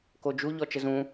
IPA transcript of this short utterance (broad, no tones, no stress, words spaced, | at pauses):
kod͡ʒu ʎɔt͡ʃəzũ